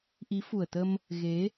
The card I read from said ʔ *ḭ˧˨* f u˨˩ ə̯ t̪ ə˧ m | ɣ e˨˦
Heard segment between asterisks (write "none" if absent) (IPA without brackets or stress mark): i˨˦